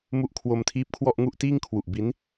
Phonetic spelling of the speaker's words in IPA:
mu˦˥ʔkʰwo˧mtʰiː˦˥p̚kʰwɔ˥˩ʔ ŋu˥˩ʔtiː˥˩ŋkʰwu˨˩ʔ bi˦˥n

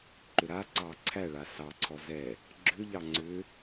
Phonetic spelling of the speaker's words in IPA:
ǃʏɾaǀɑ ǀʰæɭa sɑǀʰɔ zɛ | ɡ͡ǁʏʎɑ ŋ͡ǀʏ

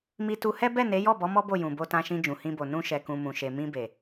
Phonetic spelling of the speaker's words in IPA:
mi˧tu˧hɛ˦ bɛ˦˨ne˨˦jɔ˦˨bɔ˨˦ mɔ˦bo˦˨ jũ˨bo˧tã˧ʃĩ˧ d͡ʒũ˨hĩ˧bo˨ nũ˧ʃɛ˨kũ˨ mũ˨ʃe˨ mĩ˧be˨

